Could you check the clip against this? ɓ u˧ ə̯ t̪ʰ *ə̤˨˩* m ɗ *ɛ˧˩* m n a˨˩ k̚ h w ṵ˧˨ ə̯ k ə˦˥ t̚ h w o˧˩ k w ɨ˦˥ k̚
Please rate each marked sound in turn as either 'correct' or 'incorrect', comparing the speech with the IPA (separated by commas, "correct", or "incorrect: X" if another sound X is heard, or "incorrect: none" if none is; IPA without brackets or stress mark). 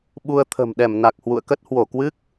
correct, correct